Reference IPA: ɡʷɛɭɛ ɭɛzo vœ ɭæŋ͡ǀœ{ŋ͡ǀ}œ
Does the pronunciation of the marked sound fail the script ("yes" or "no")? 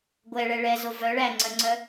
no